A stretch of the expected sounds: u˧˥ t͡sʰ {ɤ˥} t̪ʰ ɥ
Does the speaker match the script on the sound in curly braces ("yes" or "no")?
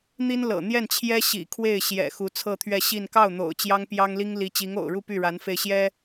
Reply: no